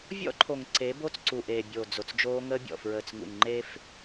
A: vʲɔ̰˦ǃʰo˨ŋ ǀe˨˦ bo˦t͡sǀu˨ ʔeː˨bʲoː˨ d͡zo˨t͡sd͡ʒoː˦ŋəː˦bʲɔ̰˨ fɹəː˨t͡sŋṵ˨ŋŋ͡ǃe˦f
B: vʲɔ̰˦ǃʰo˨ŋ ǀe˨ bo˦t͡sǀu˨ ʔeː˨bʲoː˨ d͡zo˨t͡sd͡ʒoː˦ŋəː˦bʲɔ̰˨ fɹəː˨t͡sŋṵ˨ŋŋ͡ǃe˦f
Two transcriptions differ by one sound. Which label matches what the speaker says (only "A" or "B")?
A